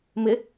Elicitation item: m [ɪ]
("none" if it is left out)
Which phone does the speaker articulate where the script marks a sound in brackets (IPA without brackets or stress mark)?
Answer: ɪ